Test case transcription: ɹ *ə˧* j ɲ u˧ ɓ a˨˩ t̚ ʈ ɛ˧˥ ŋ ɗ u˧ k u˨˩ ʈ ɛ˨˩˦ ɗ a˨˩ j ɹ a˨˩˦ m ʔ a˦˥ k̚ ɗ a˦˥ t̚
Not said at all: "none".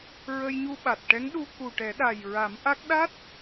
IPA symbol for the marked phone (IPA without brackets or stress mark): ə˧